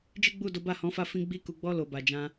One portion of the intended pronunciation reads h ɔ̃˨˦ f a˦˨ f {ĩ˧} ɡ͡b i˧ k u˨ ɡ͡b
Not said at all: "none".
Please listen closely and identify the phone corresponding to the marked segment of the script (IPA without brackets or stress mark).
ĩ˧